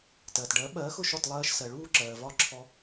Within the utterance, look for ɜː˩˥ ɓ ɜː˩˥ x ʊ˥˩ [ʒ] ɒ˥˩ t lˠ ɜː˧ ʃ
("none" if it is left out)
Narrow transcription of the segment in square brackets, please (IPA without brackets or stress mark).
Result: ʃ